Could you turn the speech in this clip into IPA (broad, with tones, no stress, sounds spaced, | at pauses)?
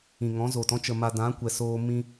ĩ˨ ŋ ɔ̃˨˦ z oː˨ t ɔ̃˧ t͡ʃ ə˨ m a˨ d ã˨˦ kʷ ɛ˨ s oː˧ m ĩ˧